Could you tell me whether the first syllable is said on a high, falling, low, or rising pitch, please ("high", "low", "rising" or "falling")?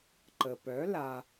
low